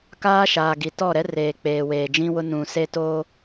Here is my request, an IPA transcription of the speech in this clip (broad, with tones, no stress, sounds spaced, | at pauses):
k aː˦ ʃ aː˨ ɡ i˨ t ɔ˦˨ ɾ ɛ˦ r eː˨ k͡p eː˨ w eː˨ d͡ʒ ĩ˦ w ʊ˦ n ũ˨ s e˦ t oː˦